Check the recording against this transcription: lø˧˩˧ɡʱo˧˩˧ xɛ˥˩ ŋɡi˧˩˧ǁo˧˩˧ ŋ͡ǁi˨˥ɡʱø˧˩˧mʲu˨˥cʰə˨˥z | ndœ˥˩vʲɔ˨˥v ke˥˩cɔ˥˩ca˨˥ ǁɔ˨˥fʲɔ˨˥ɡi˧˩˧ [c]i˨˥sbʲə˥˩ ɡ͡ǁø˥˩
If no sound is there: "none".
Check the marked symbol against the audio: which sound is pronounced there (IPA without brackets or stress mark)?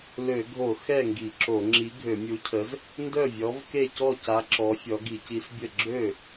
c